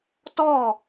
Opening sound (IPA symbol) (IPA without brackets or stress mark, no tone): t